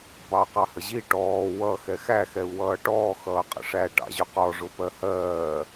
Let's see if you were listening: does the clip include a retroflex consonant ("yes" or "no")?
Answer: yes